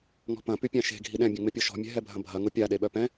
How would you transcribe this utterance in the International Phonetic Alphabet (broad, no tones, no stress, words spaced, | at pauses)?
ŋɔ̤pɐ̃ pypʲãʃe̤ ɡʱiɗɛ̃ bʲɛ̃ŋ͡mɪpʲɔʃɔ̤ mʲɛ̤ɦɛbʱɐ̃bʱɐ ŋʊpʲa ɗeɓœpɛ̃